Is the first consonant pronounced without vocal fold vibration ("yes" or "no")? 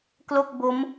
yes